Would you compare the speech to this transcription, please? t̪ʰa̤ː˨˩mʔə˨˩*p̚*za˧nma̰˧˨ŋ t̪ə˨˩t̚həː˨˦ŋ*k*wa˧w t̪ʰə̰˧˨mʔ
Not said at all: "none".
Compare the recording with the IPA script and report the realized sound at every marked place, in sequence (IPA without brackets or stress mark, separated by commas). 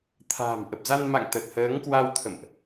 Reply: p̚, k